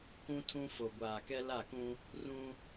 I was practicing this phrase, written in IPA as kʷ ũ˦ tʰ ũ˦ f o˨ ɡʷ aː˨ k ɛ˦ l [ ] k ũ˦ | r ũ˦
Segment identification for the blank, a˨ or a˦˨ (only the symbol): a˦˨